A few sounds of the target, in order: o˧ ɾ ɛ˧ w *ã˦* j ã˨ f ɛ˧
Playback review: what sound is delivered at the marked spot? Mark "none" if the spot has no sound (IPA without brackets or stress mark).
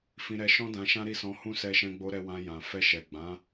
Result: ã˧